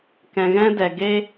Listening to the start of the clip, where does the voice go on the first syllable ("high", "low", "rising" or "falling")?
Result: low